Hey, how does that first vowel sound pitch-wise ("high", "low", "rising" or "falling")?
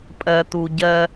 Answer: low